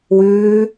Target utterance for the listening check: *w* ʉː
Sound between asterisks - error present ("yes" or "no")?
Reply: no